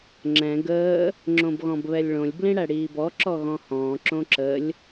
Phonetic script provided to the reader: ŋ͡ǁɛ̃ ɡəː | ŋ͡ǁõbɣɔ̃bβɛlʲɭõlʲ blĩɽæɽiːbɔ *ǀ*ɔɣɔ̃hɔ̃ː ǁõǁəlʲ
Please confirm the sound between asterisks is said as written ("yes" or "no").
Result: no